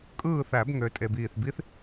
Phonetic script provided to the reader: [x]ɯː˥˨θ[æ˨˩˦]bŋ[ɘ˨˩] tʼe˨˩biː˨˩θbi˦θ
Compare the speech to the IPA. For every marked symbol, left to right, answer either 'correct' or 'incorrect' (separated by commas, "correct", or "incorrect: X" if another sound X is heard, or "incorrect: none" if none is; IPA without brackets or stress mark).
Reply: incorrect: kʼ, correct, incorrect: ø˨˩